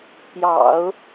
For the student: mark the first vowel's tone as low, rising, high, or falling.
low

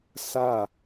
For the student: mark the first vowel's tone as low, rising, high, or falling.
falling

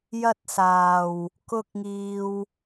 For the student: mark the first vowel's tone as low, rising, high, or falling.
high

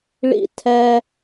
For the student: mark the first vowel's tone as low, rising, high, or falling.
high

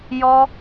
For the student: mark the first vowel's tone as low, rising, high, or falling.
high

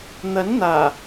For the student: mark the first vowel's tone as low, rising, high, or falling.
rising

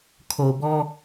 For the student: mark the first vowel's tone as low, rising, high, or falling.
low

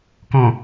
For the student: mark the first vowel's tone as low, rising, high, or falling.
low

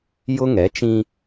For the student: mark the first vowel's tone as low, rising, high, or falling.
high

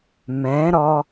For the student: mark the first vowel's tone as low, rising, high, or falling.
rising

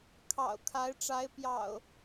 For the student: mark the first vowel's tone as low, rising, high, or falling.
low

